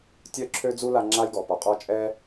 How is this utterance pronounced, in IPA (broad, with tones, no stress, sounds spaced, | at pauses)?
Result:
tʲ œ˥ ǁʰ ø˥ d͡z u˥ l a˧ ŋ͡ǁ a˥ j ɡ ɔ˩ p ɔ˩ qʼ ɔ˥ t͡ʃʼ ɛ˥